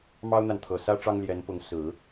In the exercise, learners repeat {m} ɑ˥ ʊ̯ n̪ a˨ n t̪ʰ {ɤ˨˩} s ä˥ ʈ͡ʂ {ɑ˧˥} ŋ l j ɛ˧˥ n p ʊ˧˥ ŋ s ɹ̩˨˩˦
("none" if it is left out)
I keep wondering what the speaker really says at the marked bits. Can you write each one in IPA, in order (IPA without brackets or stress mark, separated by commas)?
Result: m, ɤ˨˩, ɑ˥